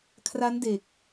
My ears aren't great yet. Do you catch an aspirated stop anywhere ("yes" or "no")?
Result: yes